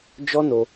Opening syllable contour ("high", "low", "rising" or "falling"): high